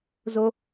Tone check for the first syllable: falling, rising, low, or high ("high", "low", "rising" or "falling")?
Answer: high